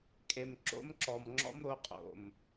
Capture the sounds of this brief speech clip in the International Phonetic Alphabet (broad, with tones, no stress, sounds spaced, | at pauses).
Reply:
kʼ e˨ m ǁ o̰˦ m ǁ ɔ˨ m ŋ͡ǁ ɔ̰˦ m ɾ o˧ qʼ o̰˨ m